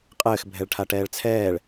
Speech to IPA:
qʼ ɘː x bʱ ɛ ɭ ʈʰ a ʈ ɛː ɭ t͡sʰ ɛː ɭ

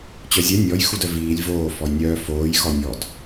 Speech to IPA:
t͡ɕ œ zʲ ɛ nʲ ɔ j x u d œ v iː lʲ v oː f ɔ j nʲ œː f oː j x ɔ nʲ ɔ d

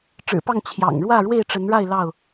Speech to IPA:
ʈ͡ʂ ɻ̩˨˩ p ɑ˥˨ ŋ t͡ɕʰ j ɑ̰˨˩ ŋ ɻ w ä˥˨ ɻ w e˥˨ ɪ̯ ʈ͡ʂ ə˨˦ n ɻ a˥˨ ɪ̯ l ɑ˥˨ ʊ̯

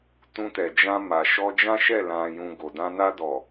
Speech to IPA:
t ũ˧ t ɛ˨ d͡ʒ ã˧ m a˨ ʃ ɔ˧ d͡ʒ ã˦ ʃ ɛ˦˨ l ã˨ j ũ˨ ɡ o˨ d ã˧ n a˧ d ɔ˨

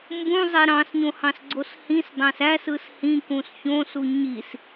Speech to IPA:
m b ũ zˤ e ɾ ɑ̃ s ɲ õ h ɑ̃ s ɡ͡ǀ o s h ĩ s dˤ æ̃ s æ s ɯ s h ĩ k ũ s ç õ s u ɲ i s

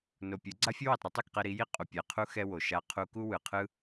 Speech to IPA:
n o˧ pʲ ɯ˨˦ ɡ͡ǀ a˦ fʲ o˦ w i˨ tˤ ɾ u˦ tˤ u˦˨ k q ɛ˧ ɾ i˨˦ j i˦ qʼ u˨ pʲ ɛ˨ qʰ u˦ x ɛ˦ w o˨ ʃ a˧ qʰ u˧ k u˦ w ɯ˨ qʰ ɯ˦

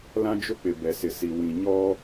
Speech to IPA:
l ã˦ d͡ʒ ʊ˦ k͡p ɪ˨ b ɛ˨ s ɪ˨ s i˨ w ĩ˨ ɲ ɔ˦

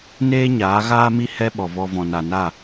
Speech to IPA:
n eː˦ ɲ aː˨˦ ɣ aː˦ m i˦ h ɛ˦ ɓ ɔ˨ v ɔ˧ v ɔ̃˨ n a˨ n a˦˨

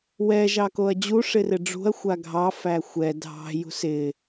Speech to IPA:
w ɛ ʒ ɑ k o ɐ̯ d͡ʑ u ʂ ɪ r ɪ ɖ͡ʐ ṳ ɐ̯ xʷ a ɡʱ ɑ f æ xʷ ɛ dʱ ɑ̤ j ṳ s ɪ

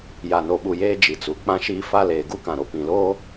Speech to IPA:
j a˨ n o˨ ɓ u˨ j eː˦ d͡ʒ i˨ t͡s u˨ k͡p ã˦ ʃ iː˦ f a˦ l eː˨ ɡ u˦ k ã˨ ɾ o˨ p ĩ˨ l oː˦

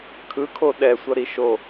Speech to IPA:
kʰ ɯ kʰ o ɗ ɛ sʷ ʌ ɾ i ʃ o

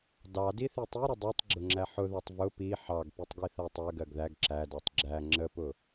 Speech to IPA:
d ɑ d i θ i tˤ i ɾ ə dˤ i tˤ ɡ͡ǁ ʊ ŋ͡ǁ æ ħ ʊ ð ɑ tˤ v ʊ p i ħ ɑ ɡ p i tˤ ɡ i θ ɜ tˤ ɜ ɡ ɜ ɡ ð æ ɡ ǁ æ d ɑ tˤ ɡ͡ǁ æ ŋ͡ǁ ə p ʊ

